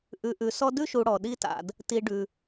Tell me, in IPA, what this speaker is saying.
ʔ ʉ˨ ʔ ʉ˨ s ɔ˦ d ʉ˥ ʃ u˨ ɽ ɔ˩ ɗ i˦ t a̰˨ d | t i˨ ɖ ʉ˩

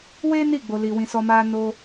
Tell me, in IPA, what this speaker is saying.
w e˦ n i˦˨ ɡ͡b o˧ l i˧ w ĩ˧ s ɔ˦ m a˦ n o˦

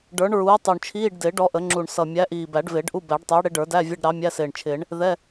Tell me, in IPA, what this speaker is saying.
ɖ ə˞˨˥ ɳ ɹ uː˨˥ tˤ u˨˩ ɳ t͡ʃʰ iː˧˥˧ ɖ d ɪː˨˩˦ ɖ ɔ˨˥ ʔ ə˨˩˦ ŋ͡ǁ u˨˩ ɳ s ʌ˨˩ mʲ æ˨˥ ʔ iː˨˩ b æ˨˩˦ ɖ v ɪː˨˩˦ ɖ ʔ u˧˥˧ b æ˨˩˦ ɖ tˤ ɪː˨˥ ɽ ɪ˨˥ ɖ ə˞˨˩˦ d æ˧˥˧ vʲ ə˧˥˧ ɖ ɾ ɑ˨˥ mʲ æ˧˥˧ s ɪː˨˩ ɳ t͡ʃʰ ɪː˨˩˦ ɳ | ð ɛ˧˥˧

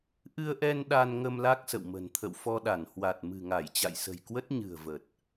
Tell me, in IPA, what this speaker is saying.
ʔ ɨ˧ ə̯ ʔ ɛ˧ n ɗ a˧ n ŋ ə˧ m l a˦˥ k̚ s ə̰˧˨ w m ə̤˨˩ n t̪ʰ ə̰˧˨ w f ɔ˧ ɗ a˧˩ n h w a˨˩ t̚ m ɨ̤˨˩ ŋ a˧˩ j t͡ɕ a̰˧˨ j s ə̤˨˩ j k w ə˦˥ t̚ ɲ ɨ̤˨˩ ə̯ v ə˨˩ t̚

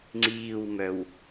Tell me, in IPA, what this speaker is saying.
ŋ͡ǀ iː w m œ w

